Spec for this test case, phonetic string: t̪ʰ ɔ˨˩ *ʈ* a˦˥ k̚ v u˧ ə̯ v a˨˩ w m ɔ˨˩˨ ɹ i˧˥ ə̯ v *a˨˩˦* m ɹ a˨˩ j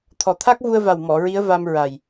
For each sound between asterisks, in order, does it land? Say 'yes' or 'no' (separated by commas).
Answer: no, no